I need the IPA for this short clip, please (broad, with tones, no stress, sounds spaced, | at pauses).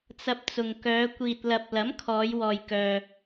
t͡s ɐ˧ p̚ t͡s ʊ˨ ŋ k œː˨˧ kʷ iː˨ t̚ l ɐ˨ p̚ l ɐ˨˥ m kʰ ɔː˨˧ j w ɔː˨ j k œː˨